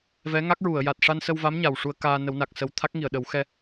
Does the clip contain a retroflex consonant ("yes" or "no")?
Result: yes